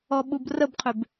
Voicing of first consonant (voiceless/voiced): voiced